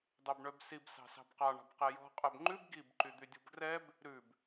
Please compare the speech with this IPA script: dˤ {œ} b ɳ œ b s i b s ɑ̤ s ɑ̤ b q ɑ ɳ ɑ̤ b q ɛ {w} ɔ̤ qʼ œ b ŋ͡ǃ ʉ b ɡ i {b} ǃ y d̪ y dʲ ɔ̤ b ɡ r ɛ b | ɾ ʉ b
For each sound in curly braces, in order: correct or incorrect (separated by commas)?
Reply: correct, incorrect, correct